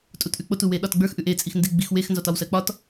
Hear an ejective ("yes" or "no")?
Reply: yes